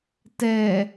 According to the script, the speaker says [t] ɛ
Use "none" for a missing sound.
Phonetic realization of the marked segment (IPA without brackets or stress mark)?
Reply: t